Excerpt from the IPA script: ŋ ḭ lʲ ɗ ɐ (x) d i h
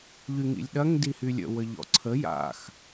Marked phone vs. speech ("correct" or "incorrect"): incorrect